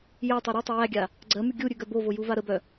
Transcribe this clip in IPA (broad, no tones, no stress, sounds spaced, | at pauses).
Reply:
j æ tˤ œ ɾ i tˤ ə j æ ɡʲ a | ɡ͡ǀ ɜ m ʉ ɡʲ u ɾʲ ʉ ɡ œ b o v o j u v a ɾ ə b œ